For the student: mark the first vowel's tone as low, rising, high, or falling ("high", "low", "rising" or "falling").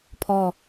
falling